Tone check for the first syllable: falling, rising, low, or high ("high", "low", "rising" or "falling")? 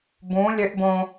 rising